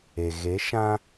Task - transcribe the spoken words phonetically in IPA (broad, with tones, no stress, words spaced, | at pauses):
e˨ ɣe˨˦ʃã˦